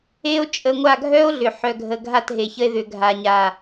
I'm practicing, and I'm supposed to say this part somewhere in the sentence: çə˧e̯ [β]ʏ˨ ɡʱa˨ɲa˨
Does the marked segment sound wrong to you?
yes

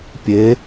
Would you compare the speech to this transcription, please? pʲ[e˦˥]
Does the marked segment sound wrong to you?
yes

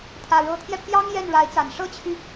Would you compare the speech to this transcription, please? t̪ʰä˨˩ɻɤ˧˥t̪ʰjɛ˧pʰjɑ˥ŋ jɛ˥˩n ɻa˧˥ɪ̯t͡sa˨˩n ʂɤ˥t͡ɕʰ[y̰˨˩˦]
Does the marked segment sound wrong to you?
yes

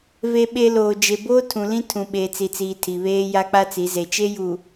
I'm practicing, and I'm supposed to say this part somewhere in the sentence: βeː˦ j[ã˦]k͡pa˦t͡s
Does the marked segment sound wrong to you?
yes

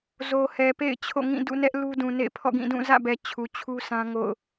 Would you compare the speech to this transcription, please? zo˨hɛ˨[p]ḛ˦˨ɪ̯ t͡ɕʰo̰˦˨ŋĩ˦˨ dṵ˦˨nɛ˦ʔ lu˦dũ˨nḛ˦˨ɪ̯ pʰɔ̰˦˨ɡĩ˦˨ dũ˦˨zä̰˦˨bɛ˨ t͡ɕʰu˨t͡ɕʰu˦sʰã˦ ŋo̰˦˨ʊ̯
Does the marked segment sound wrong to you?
no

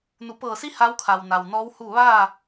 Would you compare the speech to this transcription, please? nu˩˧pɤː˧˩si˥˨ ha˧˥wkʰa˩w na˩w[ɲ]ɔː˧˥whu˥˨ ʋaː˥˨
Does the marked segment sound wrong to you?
yes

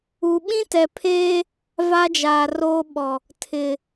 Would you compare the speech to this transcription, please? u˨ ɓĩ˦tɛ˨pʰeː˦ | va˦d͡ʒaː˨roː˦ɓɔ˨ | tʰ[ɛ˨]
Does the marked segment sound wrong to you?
yes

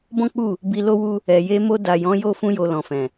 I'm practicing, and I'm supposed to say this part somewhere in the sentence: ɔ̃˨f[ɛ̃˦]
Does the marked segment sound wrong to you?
yes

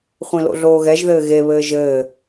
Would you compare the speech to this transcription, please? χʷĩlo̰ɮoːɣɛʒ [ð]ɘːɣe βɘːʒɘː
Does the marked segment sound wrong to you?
no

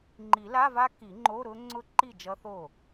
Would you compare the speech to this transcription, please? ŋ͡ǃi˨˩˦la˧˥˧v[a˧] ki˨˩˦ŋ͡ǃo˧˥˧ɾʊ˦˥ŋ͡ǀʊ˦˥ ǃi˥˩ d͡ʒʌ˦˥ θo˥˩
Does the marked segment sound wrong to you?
yes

